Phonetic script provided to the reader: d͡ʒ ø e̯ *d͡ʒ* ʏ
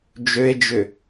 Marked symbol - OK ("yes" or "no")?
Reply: yes